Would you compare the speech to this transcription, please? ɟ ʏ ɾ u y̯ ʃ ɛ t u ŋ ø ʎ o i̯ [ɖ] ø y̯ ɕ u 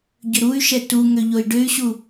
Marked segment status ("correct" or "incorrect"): correct